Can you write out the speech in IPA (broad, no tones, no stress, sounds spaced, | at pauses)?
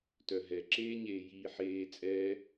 t œ ɦ ɛ ǁ eː ɲ eː j iː ħ eː t͡sʼ ɛ